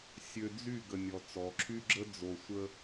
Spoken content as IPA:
sʲ ø˨ d͡z y˦˨ ɡ ə˨ nʲ ɔ˨ t͡s ɔ˨ ǁʰ y˦ ɡ͡ǁ ə˦ d͡z o˨ sʷ ə˦

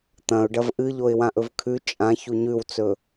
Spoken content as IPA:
t̪ ɐ̃ ʊ̯ ɖ ɐ v ʔ ɨ ʎ o ɪ̯ w ã ʔ ɵ v kʰ ʉ t͡ʃʼ ã ç u ɲ ʉ w t͡s ɵ

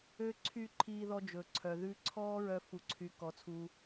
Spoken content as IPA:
ø˧ ǀʰ y˧ ǃʰ iː˧ ð ɔ˧ d͡ʒ ɵ˩ ǀʰ œ˩ ð ʉ˧ ǀʰ ɔː˥ ɹ œ˧ f u˩ ǀʰ y˩ k ɔ˩ t͡sʰ uː˩

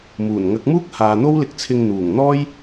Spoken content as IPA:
m uː˨˩ n ŋ ɐ˨˥ k̚ m uː˥ k̚ h aː˨ n̪ o˥ w l ɪ˧ k̚ t͡sʰ ɪ˧ ŋ n̪ uː˨˩ ŋ n̪ ɔː˥ j

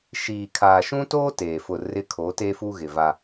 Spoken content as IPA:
ʃ iː˨ kʰ aː˨ ʃ ũ˦ t oː˦ t eː˨ f ʊ˦˨ r ɪ˦ kʰ o˨˦ t e˦ f u˦ ɣ ɪ˨ v a˦

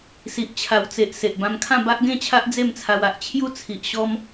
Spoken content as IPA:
s i˨ ʔ t͡ɕʰ a˨˩ w t͡s e˨ ʔ s e˨ ʔ b ã˧ m kʰ ã˥˧ b a˦ ʔ ɡ ẽ˥˧ t͡ɕʰ a˦ ʔ d͡z e˥˧ m t͡sʰ a˧ w a˨ ʔ t͡ɕʰ j u˥˧ t͡sʰ i˨ ʔ ɕ ɔ˧ m

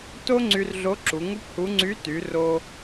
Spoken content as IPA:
t o˥ ŋ͡ǀ y˧ r ɮ o˧˥ ǁ u˩˧ ŋ u˥ p h u˧˥ ŋ͡ǀ y˧˥ t y˩˧ r o˧

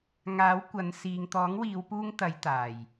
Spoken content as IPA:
ŋ aː˨˥ w kʷ ɐ˨˧ n s iː˨ ŋ t̪ ɔː˨˥ ŋ w iː˨˧ w p uː˥ ŋ t̪ ɐ˨˧ j t̪ aː˨˩ j

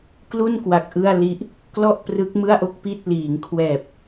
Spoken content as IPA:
k l u˥˩ n k w a˨˩ k̚ ʔ ɯ˥˩ a̯ l i˦˥ ʔ | k l ɔ˥˩ ʔ p r ɯ˦˥ k̚ m ɯ˥˩ a̯ ʔ o˥˩ k̚ p i˥˩ t̚ l iː˩˦ ŋ kʰ w ɛː˨˩ p̚

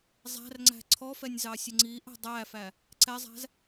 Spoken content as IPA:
zˤ æ̤ r ŋ͡ǀ æ̤ ǀʰ ɔ f ɛ nʲ z ɑ sʲ ə ŋ͡ǀ i ʔ ɛ̤ dˤ æ f æ | ǀ ɛ zˤ æ̤ z

